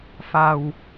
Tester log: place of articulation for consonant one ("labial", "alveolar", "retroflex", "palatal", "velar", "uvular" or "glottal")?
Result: labial